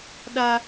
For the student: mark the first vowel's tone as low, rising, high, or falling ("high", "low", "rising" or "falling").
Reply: high